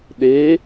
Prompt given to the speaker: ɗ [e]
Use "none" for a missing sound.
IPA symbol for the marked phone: e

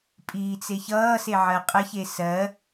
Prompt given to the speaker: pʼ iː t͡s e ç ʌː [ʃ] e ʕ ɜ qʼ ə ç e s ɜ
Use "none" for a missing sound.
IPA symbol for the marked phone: s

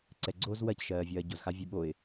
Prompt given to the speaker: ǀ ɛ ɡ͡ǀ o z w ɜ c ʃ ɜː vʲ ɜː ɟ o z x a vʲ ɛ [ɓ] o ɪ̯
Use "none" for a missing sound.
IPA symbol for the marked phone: ɓ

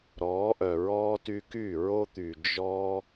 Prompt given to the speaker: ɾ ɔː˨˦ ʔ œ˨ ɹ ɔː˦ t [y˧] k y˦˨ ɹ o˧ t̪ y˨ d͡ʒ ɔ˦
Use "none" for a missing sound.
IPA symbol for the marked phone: y˧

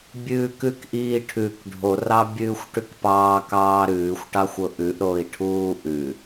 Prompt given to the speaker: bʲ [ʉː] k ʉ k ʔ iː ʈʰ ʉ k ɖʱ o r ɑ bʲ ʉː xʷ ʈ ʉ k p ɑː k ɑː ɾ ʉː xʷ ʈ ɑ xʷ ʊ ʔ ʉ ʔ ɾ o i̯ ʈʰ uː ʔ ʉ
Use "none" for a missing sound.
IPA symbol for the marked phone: ʉː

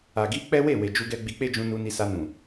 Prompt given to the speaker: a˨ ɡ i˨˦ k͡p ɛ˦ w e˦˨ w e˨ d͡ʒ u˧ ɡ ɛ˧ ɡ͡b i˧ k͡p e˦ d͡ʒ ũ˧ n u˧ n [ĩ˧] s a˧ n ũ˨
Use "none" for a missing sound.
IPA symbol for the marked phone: i˧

